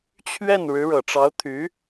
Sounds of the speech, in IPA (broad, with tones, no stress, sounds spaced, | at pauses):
t͡ɕʰ ɥ ɛ˥˩ n ɻ ɻ̩˧˥ ɻ ɤ˨˩ ʈ͡ʂ ɑ˧˥ ʊ̯ t̪ʰ y˧˥